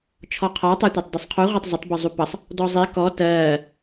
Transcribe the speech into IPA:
t͡ʃʰɔqʰɒ tˤætʷætˤdisˤqʰu ʁʷɑtˤzətˤ bəzˤupʌsˤ | dɔzˤi kɔ tɜː

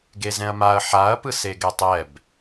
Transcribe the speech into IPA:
ɡezɛ̃ɐ̯maɐ̯ ħaɐ̯ pɯseɡɛtˤɛb

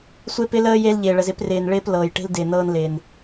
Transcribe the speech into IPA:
sʷe˦pɪ˦ləː˦ je˦lʎɪː˨ɭə˨z ɪ˦prɪː˨n ɭɪː˦p lɤː˨j ʈe̤˦ldɪː˨ nɤː˦nlɪː˨n

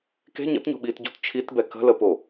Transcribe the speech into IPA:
ke̤ ɲə̰tɲo̤ɓiːtɟo̤t t͡ʃʰitbɛ kə̤ləpo

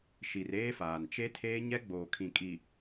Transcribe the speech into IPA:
ʃi˨reː˦faː˨n t͡ʃe˦tʰeː˦ ɲɛ˦ɡ͡boː˨kʰĩ˨ kʼi˨

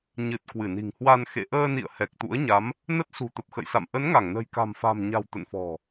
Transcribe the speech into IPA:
ɲɨ˨˩t̚ kwɨ˧˩ni̤˨˩ŋhwa˧n xḛ˧˨ʔəː˧nḭ˧˨ə̯ hɛ˨˩k̚t̪ṵ˧˥ə̯ɲa˨˦m | nə˦˥t̚ sṳ˨˩t̪ə˨˩p̚xə̰˧˨jsa̰˧˨m ʔə˨˦nŋa˧˩ŋnə̤˨˩j ka̤˨˩mfa̤˨˩mɲa̤˨˩w t̪ə̰˧˨nfɔ̤˨˩

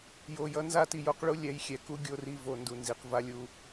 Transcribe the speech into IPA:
jo˨jʌ˦ nza˦˨ti˨jo˨˦qɭu˦ lʲɛ˨˦jxʲɛ˨ ku˦ ɡʲo˦ri˦vo˨˦ ndu˨nzi˨qva˦lʲu˦

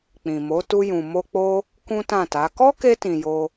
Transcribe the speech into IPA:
k͡pĩ˨mo˨˦ tu˧jũ˨mo˧k͡po˦ | kũ˦tã˦˨ta˨˦ kɔ˦ke˧tĩ˨ jo˧

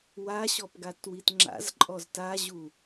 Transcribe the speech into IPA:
waɕɔp ɡatwitŋ͡ǁa̰z ǃʼɔztaʑu

